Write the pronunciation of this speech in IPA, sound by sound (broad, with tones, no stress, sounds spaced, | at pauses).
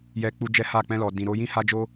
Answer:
j ɛ˧ k͡p u˧ d͡ʒ ɛ˦ h a˦˨ k͡p ɛ̃˧ l ɔ˨ d ĩ˨ ɾ o˧ j ĩ˦ h a˦ d͡ʒ o˦